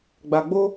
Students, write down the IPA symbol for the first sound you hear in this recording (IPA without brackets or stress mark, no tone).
ɡ͡b